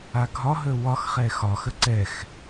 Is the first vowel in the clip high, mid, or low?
low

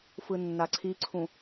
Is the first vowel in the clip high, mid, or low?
high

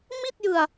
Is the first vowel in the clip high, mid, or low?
high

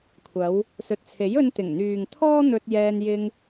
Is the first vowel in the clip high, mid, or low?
low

